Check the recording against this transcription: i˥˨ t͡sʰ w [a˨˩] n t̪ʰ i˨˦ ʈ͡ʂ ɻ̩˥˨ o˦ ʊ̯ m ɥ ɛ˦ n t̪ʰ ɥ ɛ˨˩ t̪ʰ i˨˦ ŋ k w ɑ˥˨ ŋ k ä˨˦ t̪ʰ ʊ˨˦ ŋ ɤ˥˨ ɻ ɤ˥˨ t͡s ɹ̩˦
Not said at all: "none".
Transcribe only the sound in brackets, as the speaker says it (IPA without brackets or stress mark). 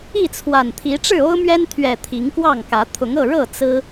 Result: a˨˩